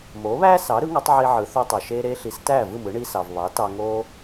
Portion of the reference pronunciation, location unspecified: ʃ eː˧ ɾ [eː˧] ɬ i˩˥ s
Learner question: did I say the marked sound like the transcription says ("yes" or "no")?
yes